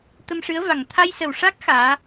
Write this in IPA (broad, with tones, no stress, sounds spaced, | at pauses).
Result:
t̪ ə˧ m ʂ ɨ˧˥ ə̯ v a˨˩ ŋ t̪ʰ a˧ j s ə˨˩ w ʂ a˦˥ k̚ x aː˧˥